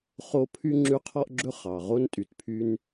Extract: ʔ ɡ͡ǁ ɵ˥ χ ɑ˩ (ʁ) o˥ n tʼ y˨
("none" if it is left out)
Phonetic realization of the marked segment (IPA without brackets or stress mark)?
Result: ʁ